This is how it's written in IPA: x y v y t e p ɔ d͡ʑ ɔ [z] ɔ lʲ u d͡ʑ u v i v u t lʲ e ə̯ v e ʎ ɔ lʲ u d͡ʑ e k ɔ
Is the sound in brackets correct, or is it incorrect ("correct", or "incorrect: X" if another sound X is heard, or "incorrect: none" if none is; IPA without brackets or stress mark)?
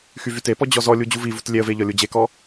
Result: correct